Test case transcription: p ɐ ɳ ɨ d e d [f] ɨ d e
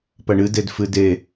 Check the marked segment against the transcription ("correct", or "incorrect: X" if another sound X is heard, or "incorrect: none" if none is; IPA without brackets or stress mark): correct